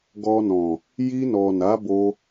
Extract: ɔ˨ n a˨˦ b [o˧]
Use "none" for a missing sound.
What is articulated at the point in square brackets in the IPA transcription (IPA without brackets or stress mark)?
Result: o˧